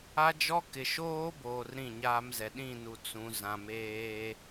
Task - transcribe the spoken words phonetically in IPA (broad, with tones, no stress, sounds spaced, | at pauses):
a˦ d͡ʒ ɔ˦ k ɪ˨ ʃ oː˦ b oː˨ r ɾ ĩ˦˨ ɲ aː˦ m z ɛ˨ ɗ ĩ˦˨ n u˨ t͡s ũ˨ z ã˨ m eː˦